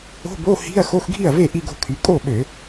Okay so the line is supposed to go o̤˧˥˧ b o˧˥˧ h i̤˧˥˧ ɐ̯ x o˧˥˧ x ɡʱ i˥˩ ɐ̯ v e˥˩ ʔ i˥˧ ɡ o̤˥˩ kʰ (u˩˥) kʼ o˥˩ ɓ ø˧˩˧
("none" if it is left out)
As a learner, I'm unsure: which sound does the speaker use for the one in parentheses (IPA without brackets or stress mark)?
y˩˥